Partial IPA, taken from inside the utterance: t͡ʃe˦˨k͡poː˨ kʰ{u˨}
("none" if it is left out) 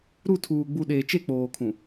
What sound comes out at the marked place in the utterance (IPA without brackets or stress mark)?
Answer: ũ˨